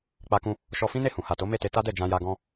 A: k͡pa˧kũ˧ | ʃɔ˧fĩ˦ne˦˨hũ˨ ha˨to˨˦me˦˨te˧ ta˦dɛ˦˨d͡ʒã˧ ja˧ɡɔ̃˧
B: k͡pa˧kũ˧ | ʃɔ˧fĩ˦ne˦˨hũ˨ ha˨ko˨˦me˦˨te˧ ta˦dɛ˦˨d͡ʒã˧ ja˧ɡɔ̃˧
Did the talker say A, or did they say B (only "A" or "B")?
A